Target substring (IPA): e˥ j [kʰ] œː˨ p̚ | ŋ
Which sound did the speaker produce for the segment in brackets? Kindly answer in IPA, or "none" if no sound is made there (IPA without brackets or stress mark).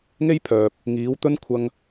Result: pʰ